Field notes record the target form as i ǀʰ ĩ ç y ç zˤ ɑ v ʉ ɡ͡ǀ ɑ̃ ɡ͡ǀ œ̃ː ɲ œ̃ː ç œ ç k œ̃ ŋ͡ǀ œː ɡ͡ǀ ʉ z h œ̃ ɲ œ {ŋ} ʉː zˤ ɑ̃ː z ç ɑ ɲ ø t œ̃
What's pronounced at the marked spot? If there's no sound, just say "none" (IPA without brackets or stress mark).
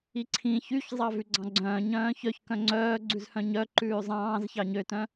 ǃ